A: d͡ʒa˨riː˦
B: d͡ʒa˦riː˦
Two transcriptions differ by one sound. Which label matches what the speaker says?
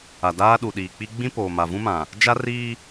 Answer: B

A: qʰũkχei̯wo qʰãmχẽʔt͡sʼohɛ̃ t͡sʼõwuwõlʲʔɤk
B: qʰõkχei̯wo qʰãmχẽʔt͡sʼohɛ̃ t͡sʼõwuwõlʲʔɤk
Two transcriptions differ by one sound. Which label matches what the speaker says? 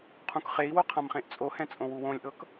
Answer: A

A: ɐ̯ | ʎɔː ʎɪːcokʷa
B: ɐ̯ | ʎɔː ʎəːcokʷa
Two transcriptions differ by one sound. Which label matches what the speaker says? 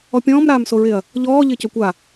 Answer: A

